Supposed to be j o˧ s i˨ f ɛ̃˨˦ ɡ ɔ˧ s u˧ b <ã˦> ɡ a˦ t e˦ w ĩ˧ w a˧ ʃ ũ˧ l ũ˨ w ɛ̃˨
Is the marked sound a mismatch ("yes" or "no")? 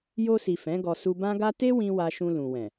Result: no